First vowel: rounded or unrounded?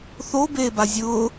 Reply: rounded